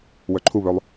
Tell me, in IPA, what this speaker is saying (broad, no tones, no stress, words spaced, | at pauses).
wœǃʰuβœlˠ